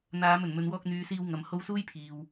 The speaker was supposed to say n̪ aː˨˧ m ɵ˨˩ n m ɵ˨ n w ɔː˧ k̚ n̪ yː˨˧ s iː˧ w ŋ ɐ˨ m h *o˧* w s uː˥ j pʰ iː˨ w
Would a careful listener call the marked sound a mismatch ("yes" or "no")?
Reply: no